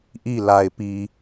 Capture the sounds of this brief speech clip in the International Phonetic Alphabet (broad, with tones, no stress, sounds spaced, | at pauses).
ʔ i˦˨ l a˨ ɪ̯ p i˨